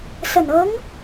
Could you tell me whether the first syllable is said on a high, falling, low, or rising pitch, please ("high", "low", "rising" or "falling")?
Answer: low